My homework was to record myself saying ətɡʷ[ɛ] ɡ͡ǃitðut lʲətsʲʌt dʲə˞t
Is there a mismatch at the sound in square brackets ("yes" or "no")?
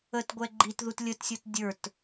no